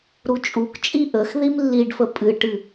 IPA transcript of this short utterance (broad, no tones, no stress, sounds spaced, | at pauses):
ɾ u t͡ʃʼ u k t͡ʃʼ i ʔ ə x ð i m lː i ɖ f ə pʼ ɨ ʈ ɨ